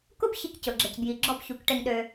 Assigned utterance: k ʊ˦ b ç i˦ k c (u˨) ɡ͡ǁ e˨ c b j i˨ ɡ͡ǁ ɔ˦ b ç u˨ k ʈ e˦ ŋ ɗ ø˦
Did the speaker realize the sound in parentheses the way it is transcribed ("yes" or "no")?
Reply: no